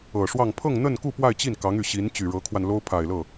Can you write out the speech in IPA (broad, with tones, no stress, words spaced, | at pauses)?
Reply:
ɤ˨˩ʂwɑ˥˧ŋ pʰɤ˥˧ŋn̪ə˥˧nku˥˧ pwa˥˧ɪ̯t͡ɕi˥˩nkɑ˧˥ŋy˨˩ ɕi˧˥n t͡ɕy˨˩ɻɤ˧˥kʰwa˧nlo˥ʊ̯ pʰa˨˩ɪ̯lɤ˥˩